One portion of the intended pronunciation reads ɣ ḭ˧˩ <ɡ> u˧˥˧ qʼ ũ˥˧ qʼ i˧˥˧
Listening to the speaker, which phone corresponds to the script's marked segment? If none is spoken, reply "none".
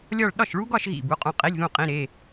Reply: b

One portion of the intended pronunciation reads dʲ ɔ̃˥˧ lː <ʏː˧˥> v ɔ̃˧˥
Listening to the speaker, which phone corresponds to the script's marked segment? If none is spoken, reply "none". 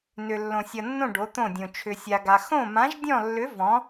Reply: ʏ˧˥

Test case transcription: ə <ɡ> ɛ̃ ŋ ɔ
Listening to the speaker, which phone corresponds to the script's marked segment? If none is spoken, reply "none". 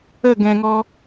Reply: ɡ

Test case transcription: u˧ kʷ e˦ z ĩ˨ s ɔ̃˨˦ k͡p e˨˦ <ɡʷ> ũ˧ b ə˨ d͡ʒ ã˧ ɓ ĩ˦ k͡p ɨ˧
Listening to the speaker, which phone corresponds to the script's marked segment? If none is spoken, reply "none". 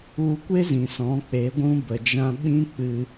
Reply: ɡʷ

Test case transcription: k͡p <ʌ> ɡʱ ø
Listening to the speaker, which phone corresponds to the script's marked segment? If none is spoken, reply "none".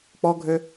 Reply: ɔ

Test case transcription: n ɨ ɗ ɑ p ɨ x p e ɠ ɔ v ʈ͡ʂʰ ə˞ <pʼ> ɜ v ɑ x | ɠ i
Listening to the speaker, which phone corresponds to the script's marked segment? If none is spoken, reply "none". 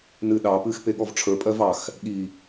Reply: pʼ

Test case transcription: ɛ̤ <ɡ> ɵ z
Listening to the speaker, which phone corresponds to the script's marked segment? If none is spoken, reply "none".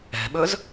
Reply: ɓ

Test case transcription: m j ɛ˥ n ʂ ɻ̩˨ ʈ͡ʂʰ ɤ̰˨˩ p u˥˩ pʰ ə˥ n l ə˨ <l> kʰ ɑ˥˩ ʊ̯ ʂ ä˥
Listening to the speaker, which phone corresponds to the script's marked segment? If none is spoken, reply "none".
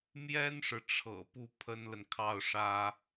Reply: n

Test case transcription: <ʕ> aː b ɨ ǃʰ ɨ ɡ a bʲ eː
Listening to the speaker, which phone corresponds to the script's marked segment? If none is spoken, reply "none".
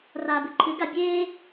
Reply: r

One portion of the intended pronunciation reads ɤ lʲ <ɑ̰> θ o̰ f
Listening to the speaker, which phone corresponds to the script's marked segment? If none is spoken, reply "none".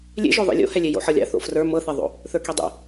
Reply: ɑ̰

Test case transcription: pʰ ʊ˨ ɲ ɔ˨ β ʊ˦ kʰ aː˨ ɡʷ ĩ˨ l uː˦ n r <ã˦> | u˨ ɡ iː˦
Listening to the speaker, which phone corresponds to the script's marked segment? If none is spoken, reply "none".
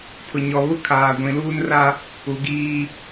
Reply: a˦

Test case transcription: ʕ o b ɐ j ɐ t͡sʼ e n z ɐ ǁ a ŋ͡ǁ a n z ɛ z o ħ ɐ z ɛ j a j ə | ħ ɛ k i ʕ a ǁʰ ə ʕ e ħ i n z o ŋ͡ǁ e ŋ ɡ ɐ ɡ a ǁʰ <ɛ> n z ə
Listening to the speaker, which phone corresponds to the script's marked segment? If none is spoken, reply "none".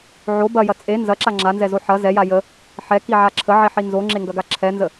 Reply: ɛ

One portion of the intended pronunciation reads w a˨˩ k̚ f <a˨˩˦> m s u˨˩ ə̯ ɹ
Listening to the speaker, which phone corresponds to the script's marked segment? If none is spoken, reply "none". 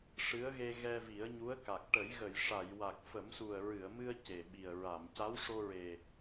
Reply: ə˨˩˦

